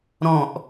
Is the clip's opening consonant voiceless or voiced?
voiced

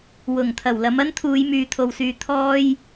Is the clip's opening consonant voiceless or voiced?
voiced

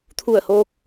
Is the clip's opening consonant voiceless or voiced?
voiceless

